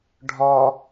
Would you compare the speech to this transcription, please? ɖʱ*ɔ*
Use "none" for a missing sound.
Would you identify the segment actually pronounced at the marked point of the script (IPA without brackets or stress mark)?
ɔ